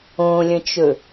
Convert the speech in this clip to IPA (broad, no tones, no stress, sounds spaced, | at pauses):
õ lʲ ə̃ t͡ʃ ɵ